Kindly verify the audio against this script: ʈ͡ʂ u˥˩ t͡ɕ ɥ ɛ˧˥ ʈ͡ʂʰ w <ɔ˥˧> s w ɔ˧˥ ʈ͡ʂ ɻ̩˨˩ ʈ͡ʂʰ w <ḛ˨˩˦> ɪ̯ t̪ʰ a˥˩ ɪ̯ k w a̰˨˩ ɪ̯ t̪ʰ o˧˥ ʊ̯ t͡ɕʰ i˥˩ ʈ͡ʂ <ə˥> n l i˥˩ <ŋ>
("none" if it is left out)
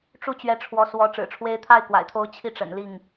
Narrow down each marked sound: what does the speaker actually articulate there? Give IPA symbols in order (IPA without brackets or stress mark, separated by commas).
ɔ˧˥, e˧˥, ə̰˨˩, ŋ